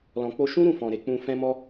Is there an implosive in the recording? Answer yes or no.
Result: no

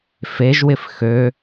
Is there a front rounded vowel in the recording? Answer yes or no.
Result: yes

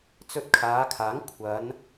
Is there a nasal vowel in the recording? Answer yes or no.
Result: no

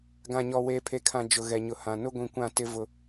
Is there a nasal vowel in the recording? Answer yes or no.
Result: yes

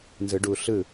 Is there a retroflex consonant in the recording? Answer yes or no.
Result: yes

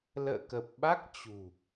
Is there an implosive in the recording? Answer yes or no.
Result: yes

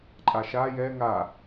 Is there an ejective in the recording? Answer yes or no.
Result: yes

